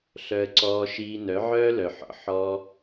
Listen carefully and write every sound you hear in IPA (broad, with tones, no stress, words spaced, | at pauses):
ɬœ˧ə̯ǀɔː˧ ʃiː˧nœ˨˦ ʕœː˦lœ˨ħɔ̰˨ ħɔ˦